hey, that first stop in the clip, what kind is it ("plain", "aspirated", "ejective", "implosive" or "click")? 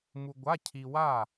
plain